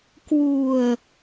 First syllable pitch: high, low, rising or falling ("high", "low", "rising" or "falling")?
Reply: low